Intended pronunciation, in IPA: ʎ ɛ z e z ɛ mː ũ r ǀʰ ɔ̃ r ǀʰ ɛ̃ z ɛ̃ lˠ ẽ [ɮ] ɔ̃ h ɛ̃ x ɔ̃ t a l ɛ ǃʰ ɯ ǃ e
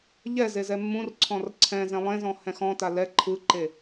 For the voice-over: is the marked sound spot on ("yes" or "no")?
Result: no